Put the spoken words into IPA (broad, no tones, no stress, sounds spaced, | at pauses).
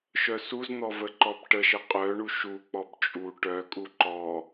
ʃ œ s u z n̪ ɔ v ə ǃ ɔ b ʈ ə ʃ ə qʼ œ ɳ u ʃ u k͡p ɔ b t͡ʃʼ u ʈ œ kʼ u ǃ ɔ